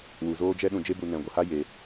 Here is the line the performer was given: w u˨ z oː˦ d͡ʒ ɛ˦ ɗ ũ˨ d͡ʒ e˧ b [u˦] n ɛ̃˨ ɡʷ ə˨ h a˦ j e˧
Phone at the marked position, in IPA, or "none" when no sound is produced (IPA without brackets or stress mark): u˨